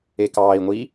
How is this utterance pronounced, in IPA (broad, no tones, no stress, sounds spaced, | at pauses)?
e k ɑː i̯ ŋʷ i